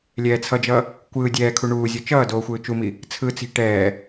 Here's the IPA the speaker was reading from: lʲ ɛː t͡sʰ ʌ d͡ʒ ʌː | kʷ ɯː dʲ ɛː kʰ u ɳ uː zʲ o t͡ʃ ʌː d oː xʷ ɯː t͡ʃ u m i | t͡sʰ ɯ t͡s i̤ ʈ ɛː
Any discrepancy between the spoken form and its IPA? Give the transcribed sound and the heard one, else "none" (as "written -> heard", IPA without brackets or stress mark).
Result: none